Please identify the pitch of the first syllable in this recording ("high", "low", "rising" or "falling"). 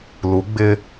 rising